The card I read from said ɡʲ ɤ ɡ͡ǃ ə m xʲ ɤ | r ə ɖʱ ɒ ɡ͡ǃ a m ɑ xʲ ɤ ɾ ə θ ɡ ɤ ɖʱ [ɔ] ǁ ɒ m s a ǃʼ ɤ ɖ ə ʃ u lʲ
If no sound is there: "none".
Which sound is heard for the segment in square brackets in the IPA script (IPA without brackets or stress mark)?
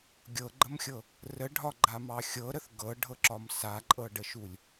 ɤ